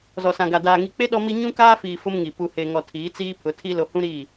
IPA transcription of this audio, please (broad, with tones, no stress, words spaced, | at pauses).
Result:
zɔ˨sã˨ɡa˨ daː˨ ŋi˨k͡pe˦ ɗɔ˦mi˦ ɲũ˦kaː˦fiː˨ fʊ˦mŋi˨ pu˨he˨ŋɔ˨ tʰiː˨˦t͡siː˦pʰʊ˨˦tʰi˦ lo˨hũ˦ ɾi˦˨